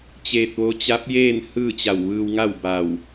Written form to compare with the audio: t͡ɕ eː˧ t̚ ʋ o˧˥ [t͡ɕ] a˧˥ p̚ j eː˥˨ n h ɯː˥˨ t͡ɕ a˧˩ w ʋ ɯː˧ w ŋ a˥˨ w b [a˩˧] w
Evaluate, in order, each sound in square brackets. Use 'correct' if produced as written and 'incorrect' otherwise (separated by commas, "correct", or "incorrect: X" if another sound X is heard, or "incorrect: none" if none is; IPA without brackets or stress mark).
correct, incorrect: a˧˩